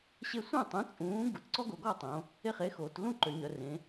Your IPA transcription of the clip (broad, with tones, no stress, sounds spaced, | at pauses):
ɕ e˦ sʷ œ̃˥˩ tˤ ũ˨˥ t͡sʼ ũː˨˥ ɡ u˩˧ t ǀ ɔ˦ ɡ o˩˧ ɡ ɔ˥˩ tˤ õ˩˧ | e˥˩ χ e˨˥ x oː˩˧ t l ũ˥˩ ǃ ø˩˧ ɲ œ˩˧ r ẽ˩˧